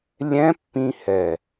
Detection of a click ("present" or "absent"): absent